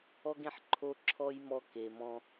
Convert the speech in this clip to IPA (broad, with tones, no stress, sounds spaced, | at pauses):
ɔ˦ ɡ ẽ˧ ħ ǃʰ o˦ ǁʰ ɔ˦ j m ɔ˦ k e˨ m ɔ̃˧